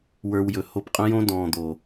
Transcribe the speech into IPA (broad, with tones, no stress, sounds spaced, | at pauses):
w ə˞˧ w j ɵ˨ h o˧ p qʼ ə̃˦ j õ˦ d ɔ̃ː˨ d̪ o˨